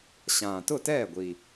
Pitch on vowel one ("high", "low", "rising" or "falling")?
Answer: low